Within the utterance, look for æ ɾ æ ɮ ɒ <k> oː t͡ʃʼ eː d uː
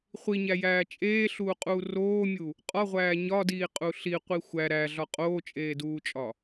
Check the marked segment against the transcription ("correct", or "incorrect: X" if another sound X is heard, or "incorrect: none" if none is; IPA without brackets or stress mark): incorrect: qʼ